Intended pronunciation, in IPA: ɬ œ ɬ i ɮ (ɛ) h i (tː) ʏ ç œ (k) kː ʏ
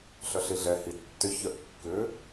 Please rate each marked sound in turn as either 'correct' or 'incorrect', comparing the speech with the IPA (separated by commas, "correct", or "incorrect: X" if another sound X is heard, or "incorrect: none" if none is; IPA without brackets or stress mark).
correct, correct, incorrect: ʔ